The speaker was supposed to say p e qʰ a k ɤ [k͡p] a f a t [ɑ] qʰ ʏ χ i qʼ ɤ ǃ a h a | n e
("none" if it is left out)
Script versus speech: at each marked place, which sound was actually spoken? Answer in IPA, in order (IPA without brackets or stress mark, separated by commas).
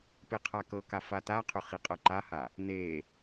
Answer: k, a